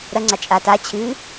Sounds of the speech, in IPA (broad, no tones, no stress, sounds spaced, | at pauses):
ɾ ɐ ŋ͡ǀ a t͡ʃʼ a t a t͡ɕʰ ɨː